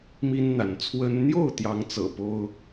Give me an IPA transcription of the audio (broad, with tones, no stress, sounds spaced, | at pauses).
m i˦ n n̪ a˨˦ n t͡sʰ w ə˦ n n̪ j o˥˨ ʊ̯ t̪ j ɑ˨˦ ŋ t͡s ɤ̰˨˩ p o˦ ʊ̯